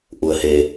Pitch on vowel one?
low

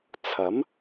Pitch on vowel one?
rising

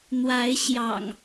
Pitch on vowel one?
rising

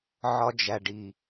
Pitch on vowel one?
high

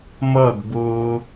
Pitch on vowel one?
falling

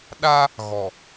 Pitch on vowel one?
high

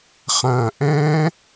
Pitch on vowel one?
low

